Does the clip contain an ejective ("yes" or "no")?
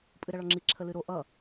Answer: yes